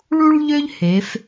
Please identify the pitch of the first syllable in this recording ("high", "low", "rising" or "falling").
high